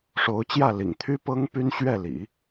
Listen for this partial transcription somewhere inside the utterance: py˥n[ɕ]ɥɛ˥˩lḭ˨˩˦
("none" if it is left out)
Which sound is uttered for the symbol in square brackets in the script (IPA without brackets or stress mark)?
ɕ